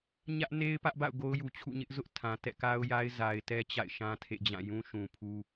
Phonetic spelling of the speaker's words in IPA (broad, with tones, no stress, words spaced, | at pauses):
ɲä˦ʔne˦ɪ̯ pä˦ʔba̰˦˨ʊ̯ ɡo˦ʊ̯ju˨t͡ɕʰṵ˦˨ ɲɪ˦ʔzʊ˦ʔ tʰã˨ tɛ̰˦˨ka˦ʊ̯ja˦ɪ̯ za˨ɪ̯tɛ˦ t͡ɕa̰˦˨ɪ̯ʃã˦tʰḛ˦˨d͡ʑã˦˨ jũ˦ʃũ˨pʰu˦